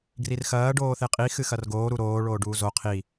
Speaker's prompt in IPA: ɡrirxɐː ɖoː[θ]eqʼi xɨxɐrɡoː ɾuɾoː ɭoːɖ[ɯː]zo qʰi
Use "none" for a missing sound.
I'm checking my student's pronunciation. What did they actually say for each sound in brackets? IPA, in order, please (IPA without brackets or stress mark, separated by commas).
θ, uː